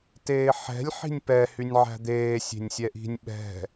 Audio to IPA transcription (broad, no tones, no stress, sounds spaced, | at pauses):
t eː ħ ɛ̤ lʲ ħ i̤ nʲ p ɛ h y nʲ ʕ æ̤ d̪ eː sʲ e̤ nʲ sʲ ɛ ʔ i̤ nʲ ɓ ɛ̤